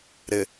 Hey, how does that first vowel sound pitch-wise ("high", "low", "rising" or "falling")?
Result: low